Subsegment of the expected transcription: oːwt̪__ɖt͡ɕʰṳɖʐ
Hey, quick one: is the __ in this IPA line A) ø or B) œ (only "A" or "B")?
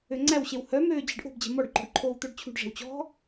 B